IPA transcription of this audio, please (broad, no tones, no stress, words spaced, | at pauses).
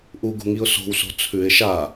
ʔuɡṳŋiʊ̯ so̤wso̤ t͡sʰʉɪ̯ ʃa